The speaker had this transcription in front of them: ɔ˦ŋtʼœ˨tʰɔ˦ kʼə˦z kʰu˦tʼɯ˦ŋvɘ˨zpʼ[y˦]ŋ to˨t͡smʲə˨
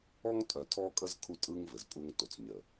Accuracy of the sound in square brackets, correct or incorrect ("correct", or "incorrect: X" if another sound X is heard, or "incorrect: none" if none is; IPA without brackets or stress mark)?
incorrect: u˦